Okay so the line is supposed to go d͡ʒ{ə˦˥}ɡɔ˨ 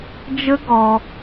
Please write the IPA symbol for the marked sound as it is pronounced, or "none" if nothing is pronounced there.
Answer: ə˦˥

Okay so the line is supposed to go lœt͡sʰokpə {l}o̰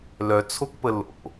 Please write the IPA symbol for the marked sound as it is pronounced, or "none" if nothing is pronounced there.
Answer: l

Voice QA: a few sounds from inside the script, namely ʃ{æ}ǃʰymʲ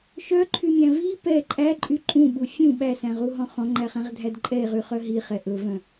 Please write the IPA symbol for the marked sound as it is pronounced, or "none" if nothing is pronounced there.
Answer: œ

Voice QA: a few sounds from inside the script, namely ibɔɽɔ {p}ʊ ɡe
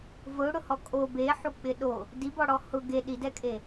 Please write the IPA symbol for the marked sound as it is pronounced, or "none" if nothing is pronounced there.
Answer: h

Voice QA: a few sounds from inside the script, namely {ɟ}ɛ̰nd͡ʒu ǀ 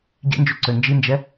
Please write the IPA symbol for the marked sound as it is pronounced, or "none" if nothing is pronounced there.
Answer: ɟ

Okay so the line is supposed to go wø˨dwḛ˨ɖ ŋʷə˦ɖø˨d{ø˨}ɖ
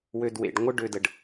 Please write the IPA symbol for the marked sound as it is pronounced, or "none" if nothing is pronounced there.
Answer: ə˨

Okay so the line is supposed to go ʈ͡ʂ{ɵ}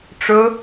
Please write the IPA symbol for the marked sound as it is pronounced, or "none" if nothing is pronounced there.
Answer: ɵ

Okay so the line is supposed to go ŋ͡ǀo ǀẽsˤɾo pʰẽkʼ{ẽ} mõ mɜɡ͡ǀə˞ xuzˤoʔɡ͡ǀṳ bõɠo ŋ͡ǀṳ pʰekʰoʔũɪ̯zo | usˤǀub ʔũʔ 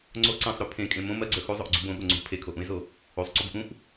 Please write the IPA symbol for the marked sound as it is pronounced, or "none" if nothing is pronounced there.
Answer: ẽ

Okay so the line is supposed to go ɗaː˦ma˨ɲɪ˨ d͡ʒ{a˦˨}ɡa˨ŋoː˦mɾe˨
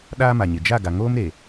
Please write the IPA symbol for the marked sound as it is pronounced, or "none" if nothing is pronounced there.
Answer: a˦˨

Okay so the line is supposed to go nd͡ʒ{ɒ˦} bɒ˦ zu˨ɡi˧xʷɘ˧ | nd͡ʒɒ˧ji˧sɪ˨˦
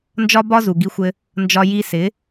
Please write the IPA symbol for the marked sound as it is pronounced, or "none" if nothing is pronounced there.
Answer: ɒ˦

